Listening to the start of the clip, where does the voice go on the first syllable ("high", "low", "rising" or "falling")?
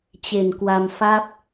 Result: low